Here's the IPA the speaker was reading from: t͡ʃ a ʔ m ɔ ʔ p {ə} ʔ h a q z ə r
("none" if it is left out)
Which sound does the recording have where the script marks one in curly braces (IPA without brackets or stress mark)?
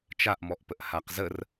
ə